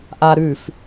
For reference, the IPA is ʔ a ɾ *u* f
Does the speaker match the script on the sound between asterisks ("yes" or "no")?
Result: no